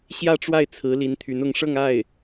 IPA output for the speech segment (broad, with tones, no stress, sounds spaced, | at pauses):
ɕ j ä˥˧ ʈ͡ʂ w a˥˩ ɪ̯ t͡sʰ ɹ̩˧˥ l i˧˥ n t̪ʰ y˧˥ n ʊ˧˥ ŋ ʂ ɤ˥˧ ŋ a˥˩ ɪ̯